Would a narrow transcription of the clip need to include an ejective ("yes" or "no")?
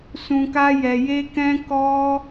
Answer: no